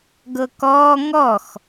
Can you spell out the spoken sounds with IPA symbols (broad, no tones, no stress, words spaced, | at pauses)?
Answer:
ɡɤkɔː ŋɔx